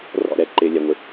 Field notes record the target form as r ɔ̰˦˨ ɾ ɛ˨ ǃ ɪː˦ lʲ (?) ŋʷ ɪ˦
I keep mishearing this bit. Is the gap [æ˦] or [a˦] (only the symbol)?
æ˦